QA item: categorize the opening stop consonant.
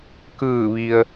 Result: plain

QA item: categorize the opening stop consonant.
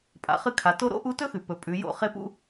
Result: ejective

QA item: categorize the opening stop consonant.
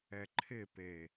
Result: click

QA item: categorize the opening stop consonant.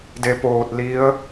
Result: plain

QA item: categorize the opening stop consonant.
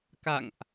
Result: plain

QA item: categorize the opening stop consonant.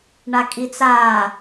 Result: ejective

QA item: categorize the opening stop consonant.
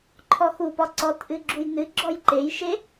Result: click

